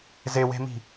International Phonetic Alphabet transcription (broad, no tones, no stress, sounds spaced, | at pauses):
z e w e̤ m i̤